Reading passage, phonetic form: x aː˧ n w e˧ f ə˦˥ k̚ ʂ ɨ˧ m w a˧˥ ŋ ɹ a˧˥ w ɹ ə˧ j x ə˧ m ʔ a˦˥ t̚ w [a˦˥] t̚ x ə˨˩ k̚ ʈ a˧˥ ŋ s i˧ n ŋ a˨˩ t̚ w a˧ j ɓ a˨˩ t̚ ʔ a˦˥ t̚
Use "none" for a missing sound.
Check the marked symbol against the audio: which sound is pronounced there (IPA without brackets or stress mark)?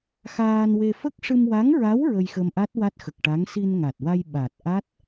a˦˥